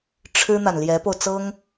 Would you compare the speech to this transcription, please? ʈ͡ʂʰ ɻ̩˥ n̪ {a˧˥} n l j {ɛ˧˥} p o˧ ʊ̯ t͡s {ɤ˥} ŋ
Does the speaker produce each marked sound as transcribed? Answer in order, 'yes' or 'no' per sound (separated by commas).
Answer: no, yes, yes